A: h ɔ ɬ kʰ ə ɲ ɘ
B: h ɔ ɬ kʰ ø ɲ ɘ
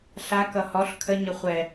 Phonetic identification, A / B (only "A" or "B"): A